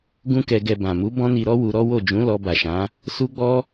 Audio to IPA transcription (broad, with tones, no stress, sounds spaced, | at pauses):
ɡ ũ˦ k ɛ˧ ɡ ɛ˧ b ã˨ m u˨˦ b ɔ̃˦ n i˧ ɾ ɔ˦ w u˧ ɾ ɔ˦ w o˦˨ d͡ʒ ũ˨˦ l ɔ˧ b a˨ ʃ ã˨˦ | s u˦ ɡ͡b ɔ˦